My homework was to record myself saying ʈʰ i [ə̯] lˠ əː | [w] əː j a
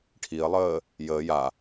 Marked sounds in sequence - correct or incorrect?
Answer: correct, incorrect

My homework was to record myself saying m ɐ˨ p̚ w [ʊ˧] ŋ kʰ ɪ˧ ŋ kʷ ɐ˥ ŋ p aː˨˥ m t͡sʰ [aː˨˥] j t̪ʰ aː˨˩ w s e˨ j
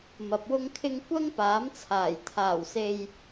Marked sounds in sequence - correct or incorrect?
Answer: correct, incorrect

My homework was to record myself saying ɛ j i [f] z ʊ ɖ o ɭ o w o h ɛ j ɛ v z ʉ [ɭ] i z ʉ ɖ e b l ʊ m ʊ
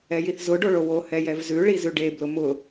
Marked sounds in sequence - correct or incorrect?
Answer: incorrect, correct

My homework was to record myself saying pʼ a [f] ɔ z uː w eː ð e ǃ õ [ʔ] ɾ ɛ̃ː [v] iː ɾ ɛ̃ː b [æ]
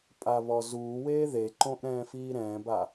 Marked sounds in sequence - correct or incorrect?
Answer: incorrect, correct, incorrect, incorrect

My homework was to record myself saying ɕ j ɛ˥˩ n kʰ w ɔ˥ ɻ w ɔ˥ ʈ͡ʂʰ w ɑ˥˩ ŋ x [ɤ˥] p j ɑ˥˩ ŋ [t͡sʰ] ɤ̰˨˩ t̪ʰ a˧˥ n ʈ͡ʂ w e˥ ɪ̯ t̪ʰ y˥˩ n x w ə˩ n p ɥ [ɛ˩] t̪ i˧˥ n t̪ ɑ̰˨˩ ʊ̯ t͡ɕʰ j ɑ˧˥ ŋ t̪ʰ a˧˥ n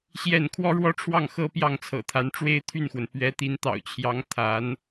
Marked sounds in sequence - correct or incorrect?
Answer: correct, correct, incorrect

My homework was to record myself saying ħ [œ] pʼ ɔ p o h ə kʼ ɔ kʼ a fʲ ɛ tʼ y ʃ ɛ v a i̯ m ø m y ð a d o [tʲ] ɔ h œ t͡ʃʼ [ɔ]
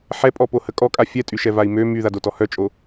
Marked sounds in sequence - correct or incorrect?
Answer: incorrect, incorrect, incorrect

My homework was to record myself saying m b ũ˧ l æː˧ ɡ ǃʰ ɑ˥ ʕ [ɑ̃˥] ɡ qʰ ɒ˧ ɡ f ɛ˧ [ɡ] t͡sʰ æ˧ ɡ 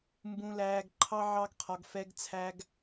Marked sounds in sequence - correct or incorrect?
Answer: incorrect, correct

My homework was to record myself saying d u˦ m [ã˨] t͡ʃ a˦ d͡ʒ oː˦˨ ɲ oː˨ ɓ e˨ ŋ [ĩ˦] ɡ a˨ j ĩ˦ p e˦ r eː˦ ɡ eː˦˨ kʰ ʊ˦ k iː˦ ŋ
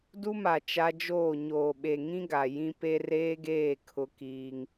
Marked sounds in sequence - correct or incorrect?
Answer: incorrect, correct

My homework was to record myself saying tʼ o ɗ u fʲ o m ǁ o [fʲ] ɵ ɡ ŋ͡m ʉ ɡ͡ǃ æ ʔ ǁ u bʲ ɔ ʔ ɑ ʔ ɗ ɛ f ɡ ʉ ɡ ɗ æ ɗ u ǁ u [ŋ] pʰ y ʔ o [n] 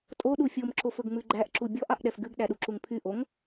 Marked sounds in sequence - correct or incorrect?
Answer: incorrect, correct, incorrect

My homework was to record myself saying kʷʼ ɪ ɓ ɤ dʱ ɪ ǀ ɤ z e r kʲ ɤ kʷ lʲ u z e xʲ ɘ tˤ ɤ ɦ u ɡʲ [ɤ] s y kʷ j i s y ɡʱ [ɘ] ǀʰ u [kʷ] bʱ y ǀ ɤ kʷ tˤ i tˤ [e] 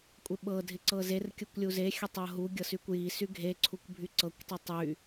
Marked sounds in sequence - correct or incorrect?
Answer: correct, incorrect, correct, incorrect

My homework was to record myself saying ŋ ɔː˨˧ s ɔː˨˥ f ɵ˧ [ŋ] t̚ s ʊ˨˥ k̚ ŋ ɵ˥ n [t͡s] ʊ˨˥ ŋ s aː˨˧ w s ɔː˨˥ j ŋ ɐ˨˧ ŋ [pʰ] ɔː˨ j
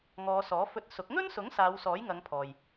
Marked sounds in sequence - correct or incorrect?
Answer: incorrect, incorrect, correct

